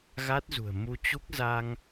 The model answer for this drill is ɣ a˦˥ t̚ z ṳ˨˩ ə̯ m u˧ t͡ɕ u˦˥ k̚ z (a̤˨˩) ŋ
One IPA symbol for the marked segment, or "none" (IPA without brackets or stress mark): a˧